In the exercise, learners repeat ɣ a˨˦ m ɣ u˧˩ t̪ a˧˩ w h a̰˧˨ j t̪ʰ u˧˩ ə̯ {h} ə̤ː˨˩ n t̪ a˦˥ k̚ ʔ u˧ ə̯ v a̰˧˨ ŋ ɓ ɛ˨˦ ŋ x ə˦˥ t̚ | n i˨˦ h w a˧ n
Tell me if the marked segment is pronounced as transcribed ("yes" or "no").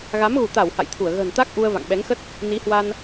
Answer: no